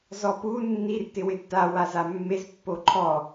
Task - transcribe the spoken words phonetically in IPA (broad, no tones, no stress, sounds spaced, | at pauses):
z ɔ p u nː i r t ɪ w ɪ d t a w a z a mː e z pː o ǃʰ ɔ